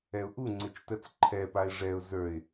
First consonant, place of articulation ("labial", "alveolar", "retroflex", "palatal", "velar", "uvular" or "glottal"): glottal